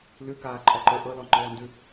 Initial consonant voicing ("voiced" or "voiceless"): voiced